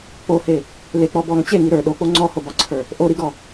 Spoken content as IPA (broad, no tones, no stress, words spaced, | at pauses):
k͡pohe | lek͡pɔ bɔŋ t͡ɕeŋi ɾə˞ ɗok͡po ŋ͡ǀɔhobɒǀʰə˞ | ʔoɾiɡɔ